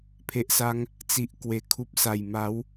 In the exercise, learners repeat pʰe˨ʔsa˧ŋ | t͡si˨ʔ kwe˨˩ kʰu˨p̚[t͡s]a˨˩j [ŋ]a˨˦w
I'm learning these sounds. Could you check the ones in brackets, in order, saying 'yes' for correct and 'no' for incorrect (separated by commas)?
no, no